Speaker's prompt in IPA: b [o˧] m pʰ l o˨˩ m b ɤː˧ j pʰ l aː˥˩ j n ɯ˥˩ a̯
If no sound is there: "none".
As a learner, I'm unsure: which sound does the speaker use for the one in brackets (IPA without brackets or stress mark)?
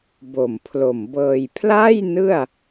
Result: o˨˩